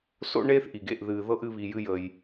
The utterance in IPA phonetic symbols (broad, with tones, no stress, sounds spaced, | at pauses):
s o̰˥ ɳ eː˥ θ ʔ i˩ ɡ ḛ˨ ʔ ð ɨː˨ ð ɤ˥ ʔ ɨ˦ β i˨ j ɨ˦ j əː˨ j